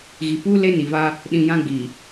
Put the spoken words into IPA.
ɣi˨puː˦ le˦ ni˨va˦ | ɗĩ˨ jã˦ ɡ͡bi˨

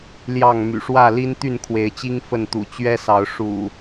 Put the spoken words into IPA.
ljɑ˥˨ŋ my̰˨˩ʂwä˥˨li˦n t̪y˥˨nkʰwe˨˦ɪ̯t͡ɕi˦ŋ fə˥˨nt̪ṵ˨˩ t͡ɕɥɛ˦sɑ˨˦ʊ̯ ʂṵ˨˩

